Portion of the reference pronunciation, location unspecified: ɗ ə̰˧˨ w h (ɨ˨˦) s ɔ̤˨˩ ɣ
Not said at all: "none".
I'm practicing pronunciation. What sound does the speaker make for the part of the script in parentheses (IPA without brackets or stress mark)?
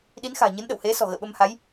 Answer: e˨˦